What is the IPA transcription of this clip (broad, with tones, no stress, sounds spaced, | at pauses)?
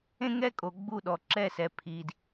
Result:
ẽ˥ ŋ ɛ˥ kʼ o˨ ɡ͡b u˥˨ ɗ ɔ˨ ǁ ɛ˥˨ s ɛ˨ pʰ i˨ d